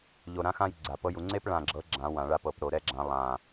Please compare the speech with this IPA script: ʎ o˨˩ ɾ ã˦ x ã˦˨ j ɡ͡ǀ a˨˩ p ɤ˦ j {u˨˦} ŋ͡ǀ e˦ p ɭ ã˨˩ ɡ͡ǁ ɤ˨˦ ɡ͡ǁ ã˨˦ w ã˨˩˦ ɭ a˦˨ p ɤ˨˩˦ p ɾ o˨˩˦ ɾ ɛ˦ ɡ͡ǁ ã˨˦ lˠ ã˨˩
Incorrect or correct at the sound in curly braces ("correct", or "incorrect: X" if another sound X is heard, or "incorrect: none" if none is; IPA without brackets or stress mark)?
correct